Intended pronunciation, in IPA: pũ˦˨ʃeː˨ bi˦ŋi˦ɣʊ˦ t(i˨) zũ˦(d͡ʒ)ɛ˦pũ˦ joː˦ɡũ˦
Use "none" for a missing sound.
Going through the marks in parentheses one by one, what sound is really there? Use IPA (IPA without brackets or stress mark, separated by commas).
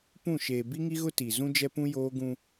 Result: i˨, d͡ʒ